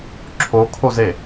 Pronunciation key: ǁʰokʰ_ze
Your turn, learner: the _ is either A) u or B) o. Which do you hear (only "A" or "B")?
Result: B